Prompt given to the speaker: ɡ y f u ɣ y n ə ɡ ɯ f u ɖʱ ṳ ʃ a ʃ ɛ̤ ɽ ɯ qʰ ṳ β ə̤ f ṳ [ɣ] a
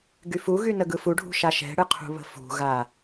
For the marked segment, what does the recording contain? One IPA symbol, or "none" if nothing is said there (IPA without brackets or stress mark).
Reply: ɣ